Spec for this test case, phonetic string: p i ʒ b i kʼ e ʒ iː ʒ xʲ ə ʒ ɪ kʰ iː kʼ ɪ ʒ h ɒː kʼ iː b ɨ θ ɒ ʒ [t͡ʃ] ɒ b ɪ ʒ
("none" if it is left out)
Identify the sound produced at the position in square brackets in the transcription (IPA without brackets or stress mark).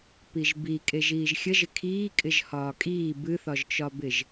t͡ʃ